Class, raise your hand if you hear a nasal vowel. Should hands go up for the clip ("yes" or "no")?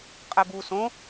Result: yes